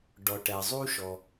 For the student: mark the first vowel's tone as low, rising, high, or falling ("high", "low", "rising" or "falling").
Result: low